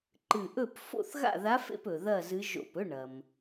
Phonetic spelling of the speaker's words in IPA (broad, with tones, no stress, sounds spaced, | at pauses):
ǃ ɨ˧˩ ʔ ɵ˥˨ p f o̰˥˨ θ ɣ a̰˥˨ ð a˧˥ f ḛ˥˨ p ɵ˩ ð ɐ˥˨ z ɨ˧˥ ʒ o̰˧˩ p ɵ˧˥˧ ɳ ɐ˩ m